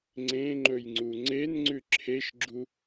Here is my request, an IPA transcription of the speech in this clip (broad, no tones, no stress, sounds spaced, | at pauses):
ŋ͡ǀ ẽ ŋ͡ǃ ɵ j ŋ͡ǀ u ŋ͡ǀ e n ŋ͡ǀ ʉ ǁʰ e ʃ ɡ͡ǁ u